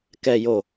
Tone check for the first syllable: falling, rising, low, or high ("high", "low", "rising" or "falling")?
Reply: low